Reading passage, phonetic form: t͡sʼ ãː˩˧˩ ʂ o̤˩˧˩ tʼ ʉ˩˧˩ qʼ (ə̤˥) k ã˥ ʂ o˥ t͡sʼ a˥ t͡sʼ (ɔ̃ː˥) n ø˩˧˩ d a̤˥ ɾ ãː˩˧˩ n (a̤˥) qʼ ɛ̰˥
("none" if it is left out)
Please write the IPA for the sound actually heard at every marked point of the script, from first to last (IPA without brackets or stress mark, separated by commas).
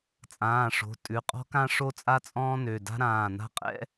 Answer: ɔ̤˥, ɔ̃ː˥, a̤˥